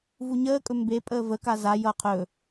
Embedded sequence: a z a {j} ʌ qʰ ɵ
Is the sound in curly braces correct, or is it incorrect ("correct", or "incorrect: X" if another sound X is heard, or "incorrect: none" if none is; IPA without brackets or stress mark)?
correct